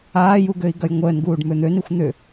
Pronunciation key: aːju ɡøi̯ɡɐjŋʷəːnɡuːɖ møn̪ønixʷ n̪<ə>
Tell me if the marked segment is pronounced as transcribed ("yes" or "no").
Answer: no